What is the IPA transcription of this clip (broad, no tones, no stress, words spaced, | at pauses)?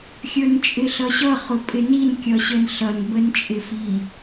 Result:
xʲə˞nt͡ʃʼɪɬʌɕʌ χʊpʼɪnin kʲʌɕənɬʌn bənt͡ʃʼɪfi